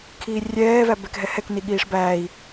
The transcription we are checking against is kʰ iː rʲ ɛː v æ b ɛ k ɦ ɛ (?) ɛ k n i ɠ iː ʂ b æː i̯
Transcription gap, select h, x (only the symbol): h